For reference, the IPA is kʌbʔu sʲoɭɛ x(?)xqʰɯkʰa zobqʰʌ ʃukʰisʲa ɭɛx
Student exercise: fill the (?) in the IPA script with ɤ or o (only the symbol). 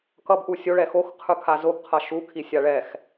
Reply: o